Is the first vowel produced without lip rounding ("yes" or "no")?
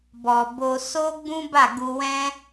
no